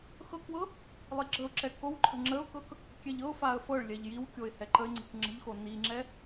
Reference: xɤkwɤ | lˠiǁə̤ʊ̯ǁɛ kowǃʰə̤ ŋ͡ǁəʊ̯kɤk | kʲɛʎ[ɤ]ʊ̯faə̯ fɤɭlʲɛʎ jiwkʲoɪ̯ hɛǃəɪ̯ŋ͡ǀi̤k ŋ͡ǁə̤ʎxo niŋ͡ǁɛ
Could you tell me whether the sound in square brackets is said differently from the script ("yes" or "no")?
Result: no